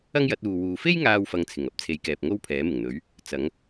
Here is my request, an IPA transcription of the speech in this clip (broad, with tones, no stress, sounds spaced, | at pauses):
ɐ˥ ŋ j ɐ˨˥ t̚ uː˨ w uː˨ f e˥ j ŋ aː˥ w f ɐ˧ ŋ t͡sʰ ɪ˨˩ ŋ ɐ˥ p̚ t͡sʰ e˨˧ j k ɛː˨ p̚ ŋ o˥ w pʰ ɛː˨˥ m ɪ˨˩ ŋ n̪ ɵ˨˥ ɥ | t͡s ɐ˨˥ ŋ